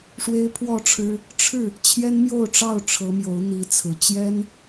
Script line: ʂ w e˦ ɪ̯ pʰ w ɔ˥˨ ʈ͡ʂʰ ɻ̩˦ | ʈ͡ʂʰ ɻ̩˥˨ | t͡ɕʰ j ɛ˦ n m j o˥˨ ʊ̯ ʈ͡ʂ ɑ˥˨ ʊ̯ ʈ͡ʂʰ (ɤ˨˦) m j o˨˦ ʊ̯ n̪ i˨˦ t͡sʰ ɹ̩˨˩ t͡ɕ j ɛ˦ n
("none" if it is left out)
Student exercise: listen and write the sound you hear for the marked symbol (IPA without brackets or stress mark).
ɤ˨˦